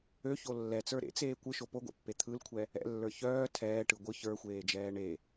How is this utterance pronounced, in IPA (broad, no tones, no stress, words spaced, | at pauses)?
øço lːɛt͡sə˞ ɾḛt͡seː kʷɯʃo poɡʷɛ̰pːe t̪ʰɯlkʷʰɛ | ɛ̰lːə˞ çœː tʰɛːʈɯ ɡʷɯ çə˞xʷeːd͡ʒɛː ɳe